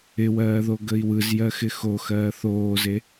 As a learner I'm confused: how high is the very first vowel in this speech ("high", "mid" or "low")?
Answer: high